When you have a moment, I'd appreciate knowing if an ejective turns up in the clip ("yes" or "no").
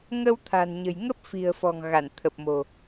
no